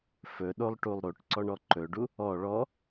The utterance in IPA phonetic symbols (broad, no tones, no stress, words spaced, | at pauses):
fɵɗolˠʈulˠ ɾoʈǀɔɳɔ ǃɵɖu | ɔ ɭɔ